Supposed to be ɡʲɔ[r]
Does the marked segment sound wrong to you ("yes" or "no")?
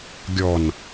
yes